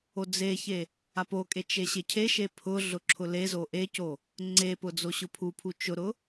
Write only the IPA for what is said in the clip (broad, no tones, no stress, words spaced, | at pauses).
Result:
od͡zeçe | apokʼe t͡ʃeɕecʰeʃe pʰʊɮʊ ǁʰʊlezo ʔeco | ŋ͡ǀepʊ d͡zoɕʊpʰupʰu t͡ʃʊɾʊ